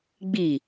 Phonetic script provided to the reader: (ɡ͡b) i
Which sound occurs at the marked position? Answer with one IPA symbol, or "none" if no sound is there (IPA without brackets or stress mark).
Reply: ɡ͡b